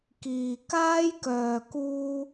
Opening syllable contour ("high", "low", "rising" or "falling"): low